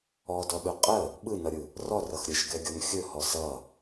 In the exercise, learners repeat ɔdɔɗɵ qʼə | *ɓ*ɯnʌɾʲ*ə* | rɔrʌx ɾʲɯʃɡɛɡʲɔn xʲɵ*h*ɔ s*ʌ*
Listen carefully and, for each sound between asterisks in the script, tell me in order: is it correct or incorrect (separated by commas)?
correct, incorrect, correct, correct